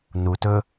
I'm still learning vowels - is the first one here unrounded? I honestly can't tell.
no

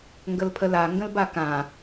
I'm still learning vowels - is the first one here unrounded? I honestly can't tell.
yes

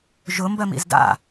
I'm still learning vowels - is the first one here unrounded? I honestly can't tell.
no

